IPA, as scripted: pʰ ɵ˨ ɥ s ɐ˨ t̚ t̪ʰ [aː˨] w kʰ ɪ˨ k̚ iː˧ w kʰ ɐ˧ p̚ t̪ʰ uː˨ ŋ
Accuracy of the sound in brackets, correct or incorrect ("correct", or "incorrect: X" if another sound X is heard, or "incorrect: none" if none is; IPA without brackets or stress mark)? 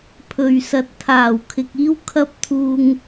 incorrect: aː˨˩